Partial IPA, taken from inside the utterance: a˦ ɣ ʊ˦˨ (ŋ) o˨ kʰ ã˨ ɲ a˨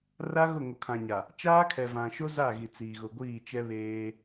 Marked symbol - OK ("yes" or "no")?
yes